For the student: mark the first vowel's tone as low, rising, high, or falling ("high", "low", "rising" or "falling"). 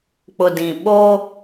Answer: low